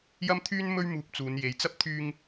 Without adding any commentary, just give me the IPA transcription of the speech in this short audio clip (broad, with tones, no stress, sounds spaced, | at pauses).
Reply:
j ɐ˥ m t̪ʰ yː˥ n m ɵ˥ ɥ m uː˧ p̚ t͡s uː˨˧ n j e˨˧ j t͡s ɐ˥ p̚ t̪ʰ yː˧ ŋ